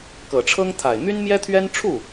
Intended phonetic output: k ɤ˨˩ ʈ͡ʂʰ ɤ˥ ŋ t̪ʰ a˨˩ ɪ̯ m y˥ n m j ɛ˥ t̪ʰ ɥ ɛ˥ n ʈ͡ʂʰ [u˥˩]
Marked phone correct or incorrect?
correct